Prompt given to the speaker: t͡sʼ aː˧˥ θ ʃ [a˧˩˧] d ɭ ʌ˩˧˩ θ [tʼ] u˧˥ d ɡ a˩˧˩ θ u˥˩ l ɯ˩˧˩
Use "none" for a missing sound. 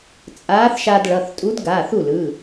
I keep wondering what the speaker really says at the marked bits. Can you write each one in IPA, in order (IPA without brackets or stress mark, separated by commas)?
a˧, tʼ